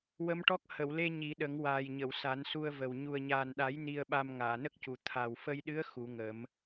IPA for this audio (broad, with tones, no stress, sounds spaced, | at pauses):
w ə˧˥ m ʈ ɔ˦˥ k̚ h ə˨˩˨ w l e˧ ɲ i˨˩˦ ɗ ə˨˩˦ ŋ w aː˨˩ j ɲ ə˨˩˨ w s a˨˩˦ n s u˧ ə̯ v ə˨˩ w ɲ u˨˩ ə̯ ɲ aː˨˩ n ɗ a˨˩˦ j n i˧ ə̯ ɓ a˧ m ŋ aː˨˩˨ n ə˦˥ k̚ c u˨˩ t̪ʰ a˨˩ w f ə˧ j ɗ ɨ˧˥ ə̯ x u˨˩˦ ŋ ə˨˩˦ m